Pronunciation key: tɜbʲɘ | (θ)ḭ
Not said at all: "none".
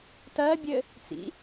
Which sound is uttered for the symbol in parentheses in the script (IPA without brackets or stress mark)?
t͡s